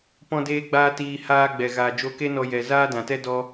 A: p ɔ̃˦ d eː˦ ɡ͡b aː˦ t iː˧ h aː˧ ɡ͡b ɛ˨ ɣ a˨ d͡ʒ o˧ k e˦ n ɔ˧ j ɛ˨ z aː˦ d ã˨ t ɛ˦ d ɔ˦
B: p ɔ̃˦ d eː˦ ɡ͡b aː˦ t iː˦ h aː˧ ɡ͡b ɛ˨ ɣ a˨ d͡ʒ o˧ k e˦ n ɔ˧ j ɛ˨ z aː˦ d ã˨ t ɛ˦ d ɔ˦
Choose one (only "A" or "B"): A